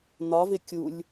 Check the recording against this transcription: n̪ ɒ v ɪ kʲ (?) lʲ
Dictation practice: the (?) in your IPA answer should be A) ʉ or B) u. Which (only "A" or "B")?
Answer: B